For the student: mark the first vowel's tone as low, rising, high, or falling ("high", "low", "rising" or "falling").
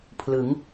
rising